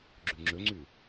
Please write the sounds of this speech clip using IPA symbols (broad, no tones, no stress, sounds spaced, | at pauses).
ɡ͡ǁ ʉ ŋ͡ǁ ɵ ŋ͡ǀ ʉ